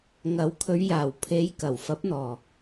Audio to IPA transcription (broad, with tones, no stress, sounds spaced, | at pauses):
ŋ ɐ˨˥ w kʰ ɵ˨˧ ɥ j aː˨˩ w pʰ e˨˧ j k ɐ˨˩ w f ɐ˨˥ p̚ n̪ ɔː˨˩